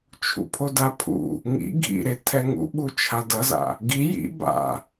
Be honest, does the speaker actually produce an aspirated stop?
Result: yes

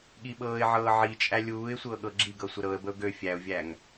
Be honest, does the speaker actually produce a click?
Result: yes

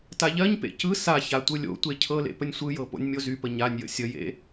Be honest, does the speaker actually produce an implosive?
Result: no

